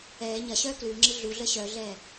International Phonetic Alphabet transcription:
ɛː ɲɐɕœː klʉːŋ͡ǁɨ ɮuɮəː ɕœɮɛː

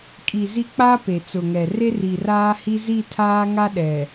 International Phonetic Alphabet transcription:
kʼi˨zi˦ k͡pa˦ pe˨t͡sʊ˨ŋɛ˨ re˦ri˨raː˦hi˦ zi˦˨tʰaː˦ŋa˦ ɗɛ˨

